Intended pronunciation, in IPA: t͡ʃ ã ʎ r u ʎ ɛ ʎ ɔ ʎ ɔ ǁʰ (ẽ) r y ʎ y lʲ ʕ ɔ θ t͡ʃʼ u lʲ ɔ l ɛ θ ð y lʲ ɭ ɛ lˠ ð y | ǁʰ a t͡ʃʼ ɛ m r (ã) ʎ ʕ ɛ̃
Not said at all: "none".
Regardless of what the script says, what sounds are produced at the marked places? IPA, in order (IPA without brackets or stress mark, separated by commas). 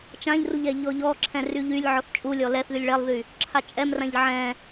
ɛ̃, ã